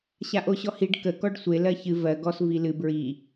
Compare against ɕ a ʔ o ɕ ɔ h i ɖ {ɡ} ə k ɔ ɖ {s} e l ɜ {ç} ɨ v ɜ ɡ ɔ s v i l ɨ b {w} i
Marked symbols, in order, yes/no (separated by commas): no, no, yes, no